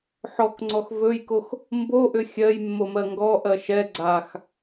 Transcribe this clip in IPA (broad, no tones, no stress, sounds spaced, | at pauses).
ħ ɔ k ŋ͡ǀ ɔ x v ɵ j k o x | m b o ʔ ʏ xʲ ɜ j mː o m ɜ ŋ ɡ ɔ ʔ ɜ ʃ ɛ ɡ͡ǀ a x